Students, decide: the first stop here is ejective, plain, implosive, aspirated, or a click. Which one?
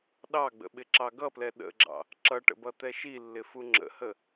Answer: implosive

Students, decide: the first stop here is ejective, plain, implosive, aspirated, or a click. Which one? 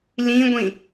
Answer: plain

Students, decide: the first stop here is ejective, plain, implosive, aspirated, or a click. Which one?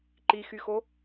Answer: click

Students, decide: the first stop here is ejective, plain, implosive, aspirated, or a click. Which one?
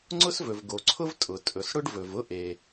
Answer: click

